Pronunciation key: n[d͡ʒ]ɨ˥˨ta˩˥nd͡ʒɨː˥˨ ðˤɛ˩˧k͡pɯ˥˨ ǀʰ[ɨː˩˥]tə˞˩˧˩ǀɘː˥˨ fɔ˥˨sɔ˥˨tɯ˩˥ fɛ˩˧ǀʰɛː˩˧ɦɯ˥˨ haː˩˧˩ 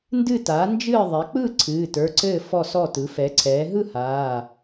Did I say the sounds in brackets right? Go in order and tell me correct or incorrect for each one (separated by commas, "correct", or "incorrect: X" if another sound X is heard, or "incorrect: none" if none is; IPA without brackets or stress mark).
incorrect: d, incorrect: ɨː˩˧˩